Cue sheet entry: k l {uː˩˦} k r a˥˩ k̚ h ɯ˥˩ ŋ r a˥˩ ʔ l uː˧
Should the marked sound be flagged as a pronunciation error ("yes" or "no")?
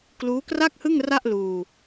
yes